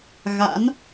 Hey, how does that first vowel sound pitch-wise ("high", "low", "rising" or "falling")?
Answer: rising